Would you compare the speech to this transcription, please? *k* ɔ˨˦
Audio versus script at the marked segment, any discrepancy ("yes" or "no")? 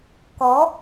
no